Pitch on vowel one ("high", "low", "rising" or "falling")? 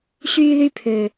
high